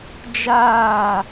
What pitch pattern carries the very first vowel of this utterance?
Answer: falling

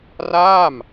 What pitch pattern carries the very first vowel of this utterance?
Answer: falling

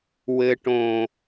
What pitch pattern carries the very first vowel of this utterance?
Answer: low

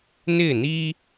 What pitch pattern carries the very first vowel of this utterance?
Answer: falling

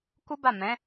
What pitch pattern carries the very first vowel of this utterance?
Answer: high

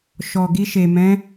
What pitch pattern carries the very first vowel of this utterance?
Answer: low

